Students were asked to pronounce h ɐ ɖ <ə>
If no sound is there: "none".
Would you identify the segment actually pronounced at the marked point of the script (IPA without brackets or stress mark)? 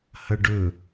ɵ